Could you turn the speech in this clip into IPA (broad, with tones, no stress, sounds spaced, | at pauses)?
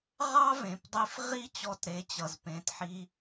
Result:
ʁ ɑ˥ v ẽ˩ p dˤ i˧ f ʁ i˥ t͡ɕ ɔ˧ t ɾ e˩˥ t͡ɕ ʌ˩ z p ẽ˩˥ t ħ i˧